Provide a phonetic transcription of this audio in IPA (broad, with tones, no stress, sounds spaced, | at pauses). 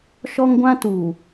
ʃ ɔ˦ ŋ ɡʷ ã˦ t u˨